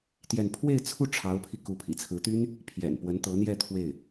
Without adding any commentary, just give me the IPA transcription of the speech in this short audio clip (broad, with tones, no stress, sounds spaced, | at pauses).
t̪ j ɛ˥˧ n pʰ w e˥˧ ɪ̯ t͡sʰ u˥˩ ʈ͡ʂʰ ɑ˧˥ ʊ̯ pʰ i˧ k u˧˥ pʰ ḭ˨˩ t͡sʰ ɹ̩˧˥ t̪ y˥ n | pʰ j ɛ̰˨˩ n p w ə˧˥ n t̪ ɤ˧˥ n̪ j ɛ˥˧ t̪ʰ w e˥˩ ɪ̯